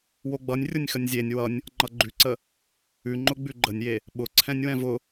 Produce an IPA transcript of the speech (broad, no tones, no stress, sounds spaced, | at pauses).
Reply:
w o ɡ͡b ʌ nʲ rʲ ʊ nʲ x ə nʲ zʲ e nʲ w ʌ nʲ | ŋ͡ǃ ʌ ɡ͡ǃ ʉ ǀ ə | ʉ ŋ͡ǃ ʊ ɡ͡b ʉ ɡ͡ǃ ə nʲ j e | ɓ ʊ ǀʰ ɛ̃ nʲ w ɛ̃ v ʊ